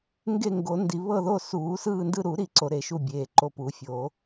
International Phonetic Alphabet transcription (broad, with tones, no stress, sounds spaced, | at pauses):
ŋ ɡ e˦˨ ŋ ɡ o˨˩˦ n d i˨˩˦ β ɤ˦˨ ð o˦˨ s uː˨˩˦ s ɯː˦˨ n d ɯ˦˨ ɾ u˨˩˦ ɾ i˨˩˦ ǀ o˨˩˦ ɾ e˨˩˦ ʃ u˦˨ bʲ eː˨˩˦ ǃ o˦˨ p u˨˩˦ fʲ oː˨˩˦